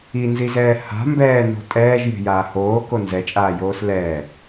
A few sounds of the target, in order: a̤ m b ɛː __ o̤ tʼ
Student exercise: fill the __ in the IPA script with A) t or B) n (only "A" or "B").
B